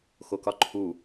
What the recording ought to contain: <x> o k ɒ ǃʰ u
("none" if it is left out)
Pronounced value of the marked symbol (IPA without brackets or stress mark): x